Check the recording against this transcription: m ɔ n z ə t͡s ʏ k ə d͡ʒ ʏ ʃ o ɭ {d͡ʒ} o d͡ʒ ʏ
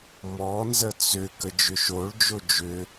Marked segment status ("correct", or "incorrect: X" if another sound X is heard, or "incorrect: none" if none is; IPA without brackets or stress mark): correct